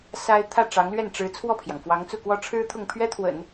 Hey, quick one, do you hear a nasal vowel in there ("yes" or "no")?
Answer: no